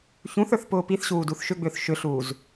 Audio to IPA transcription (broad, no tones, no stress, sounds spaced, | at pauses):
ç ũ θ ə˞ θ p ʊː p i θ ɕ uː d u θ ʃ ʏ ɡ͡b ʏː θ ʃ ʏ ɬ uː z